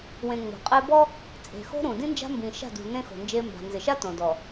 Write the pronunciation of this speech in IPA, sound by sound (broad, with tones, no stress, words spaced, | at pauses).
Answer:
wẽ˨ ŋ͡mo̤˨qʼe˦ bɔ˦ | t͡sʼe̤˨xo̤˦ɾũ˨ dĩ˦nd͡ʒa̤˦mbĩ˨ʃa̤˦˨ dṳ˨ nẽ˦xo̤˨nd͡ʒe˦ mba̤˨nzɪ˨ʃa˦ tõ˨dɔ˨